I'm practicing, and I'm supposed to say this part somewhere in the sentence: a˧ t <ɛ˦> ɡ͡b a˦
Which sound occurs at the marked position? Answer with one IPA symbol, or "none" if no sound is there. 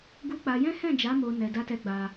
ɛ˧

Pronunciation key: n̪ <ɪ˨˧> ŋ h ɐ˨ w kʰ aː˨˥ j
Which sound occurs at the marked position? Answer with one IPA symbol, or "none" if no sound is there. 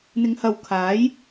ɪ˨˧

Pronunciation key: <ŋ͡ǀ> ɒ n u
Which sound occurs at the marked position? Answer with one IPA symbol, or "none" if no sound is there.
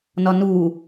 n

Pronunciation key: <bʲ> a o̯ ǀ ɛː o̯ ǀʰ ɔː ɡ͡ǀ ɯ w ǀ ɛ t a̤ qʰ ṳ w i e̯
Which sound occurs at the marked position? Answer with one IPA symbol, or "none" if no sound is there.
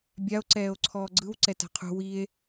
bʲ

